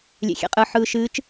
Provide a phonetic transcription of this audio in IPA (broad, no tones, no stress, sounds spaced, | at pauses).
lʲ ḛ xʲ ḛ qʼ ɯ ħ ɯː ʃ ɨː t͡ʃ